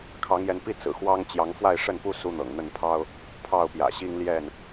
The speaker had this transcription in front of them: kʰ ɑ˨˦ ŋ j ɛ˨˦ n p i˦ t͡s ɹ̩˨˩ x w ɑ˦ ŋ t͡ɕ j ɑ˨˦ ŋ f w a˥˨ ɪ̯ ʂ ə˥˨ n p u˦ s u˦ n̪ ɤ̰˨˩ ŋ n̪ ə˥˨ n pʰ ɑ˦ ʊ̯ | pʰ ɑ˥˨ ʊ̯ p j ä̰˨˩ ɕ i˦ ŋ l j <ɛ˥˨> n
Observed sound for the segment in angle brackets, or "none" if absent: ɛ˥˨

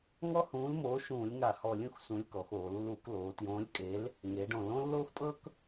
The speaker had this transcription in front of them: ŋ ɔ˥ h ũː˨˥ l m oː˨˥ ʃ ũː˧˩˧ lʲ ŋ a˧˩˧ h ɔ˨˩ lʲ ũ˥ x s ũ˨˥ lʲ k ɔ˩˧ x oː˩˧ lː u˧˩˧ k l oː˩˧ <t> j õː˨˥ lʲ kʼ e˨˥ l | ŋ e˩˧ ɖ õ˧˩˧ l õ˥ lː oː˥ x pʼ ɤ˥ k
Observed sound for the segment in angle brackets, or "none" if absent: t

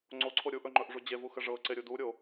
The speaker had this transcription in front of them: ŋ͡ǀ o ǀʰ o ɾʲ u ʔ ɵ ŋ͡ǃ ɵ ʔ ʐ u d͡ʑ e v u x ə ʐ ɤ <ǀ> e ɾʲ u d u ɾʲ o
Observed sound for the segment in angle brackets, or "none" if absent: ǀ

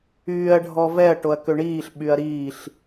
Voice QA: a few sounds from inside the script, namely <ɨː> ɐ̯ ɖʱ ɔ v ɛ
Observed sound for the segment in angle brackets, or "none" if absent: yː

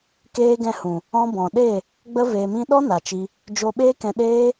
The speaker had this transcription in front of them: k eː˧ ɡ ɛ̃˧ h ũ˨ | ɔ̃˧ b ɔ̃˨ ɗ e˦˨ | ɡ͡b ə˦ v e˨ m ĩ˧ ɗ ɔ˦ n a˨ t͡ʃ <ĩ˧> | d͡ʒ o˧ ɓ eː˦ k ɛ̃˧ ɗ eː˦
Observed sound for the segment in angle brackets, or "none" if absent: i˧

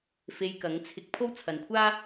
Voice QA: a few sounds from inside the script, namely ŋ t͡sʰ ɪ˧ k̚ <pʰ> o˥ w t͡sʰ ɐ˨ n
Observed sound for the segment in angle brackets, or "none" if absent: pʰ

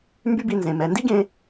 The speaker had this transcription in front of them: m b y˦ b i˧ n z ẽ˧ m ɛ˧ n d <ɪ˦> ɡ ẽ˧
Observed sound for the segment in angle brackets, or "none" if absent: i˦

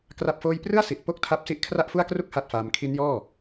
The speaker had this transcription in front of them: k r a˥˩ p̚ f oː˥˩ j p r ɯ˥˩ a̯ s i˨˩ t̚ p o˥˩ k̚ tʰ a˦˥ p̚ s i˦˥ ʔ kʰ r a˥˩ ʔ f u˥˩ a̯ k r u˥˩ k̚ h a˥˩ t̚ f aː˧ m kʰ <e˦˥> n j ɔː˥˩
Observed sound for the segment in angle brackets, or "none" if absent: i˦˥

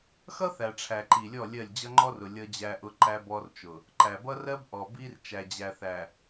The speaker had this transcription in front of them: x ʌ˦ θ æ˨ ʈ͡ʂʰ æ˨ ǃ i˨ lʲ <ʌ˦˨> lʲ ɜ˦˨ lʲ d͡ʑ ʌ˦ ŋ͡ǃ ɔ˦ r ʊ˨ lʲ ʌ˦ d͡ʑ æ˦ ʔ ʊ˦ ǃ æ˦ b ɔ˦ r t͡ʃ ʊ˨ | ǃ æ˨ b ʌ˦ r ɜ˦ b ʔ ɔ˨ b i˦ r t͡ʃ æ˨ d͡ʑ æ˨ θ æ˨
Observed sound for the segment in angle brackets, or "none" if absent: ɔ˦˨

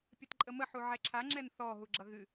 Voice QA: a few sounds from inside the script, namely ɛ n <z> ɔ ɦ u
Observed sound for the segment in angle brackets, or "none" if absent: θ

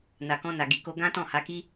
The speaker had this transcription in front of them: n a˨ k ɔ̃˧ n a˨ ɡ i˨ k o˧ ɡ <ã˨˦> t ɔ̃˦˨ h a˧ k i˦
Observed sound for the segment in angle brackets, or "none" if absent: ã˦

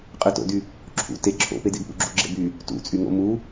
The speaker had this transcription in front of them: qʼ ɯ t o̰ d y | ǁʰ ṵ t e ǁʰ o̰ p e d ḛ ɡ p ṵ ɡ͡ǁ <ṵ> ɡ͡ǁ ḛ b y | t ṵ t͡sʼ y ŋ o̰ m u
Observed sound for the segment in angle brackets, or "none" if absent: ṵ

